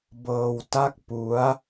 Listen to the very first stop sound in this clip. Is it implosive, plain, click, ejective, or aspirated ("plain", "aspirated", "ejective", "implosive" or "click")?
plain